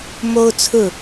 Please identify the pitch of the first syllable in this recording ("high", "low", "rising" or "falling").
high